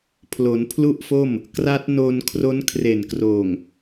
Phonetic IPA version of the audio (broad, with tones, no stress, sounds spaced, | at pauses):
pʰ l o˩˦ n pʰ l u˥˩ ʔ f o˥˩ m | k r a˦˥ t̚ n o˧ n kʰ r o˦˥ n kʰ r e˨˩ n k r oː˨˩ ŋ